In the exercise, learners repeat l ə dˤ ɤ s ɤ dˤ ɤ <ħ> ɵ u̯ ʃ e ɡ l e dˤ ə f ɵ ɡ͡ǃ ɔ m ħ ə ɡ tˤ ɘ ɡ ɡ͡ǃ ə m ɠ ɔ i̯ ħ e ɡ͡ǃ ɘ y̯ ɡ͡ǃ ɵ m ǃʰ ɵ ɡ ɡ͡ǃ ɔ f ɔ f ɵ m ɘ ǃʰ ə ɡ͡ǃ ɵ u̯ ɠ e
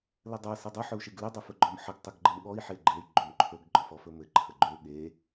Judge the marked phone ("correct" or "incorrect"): correct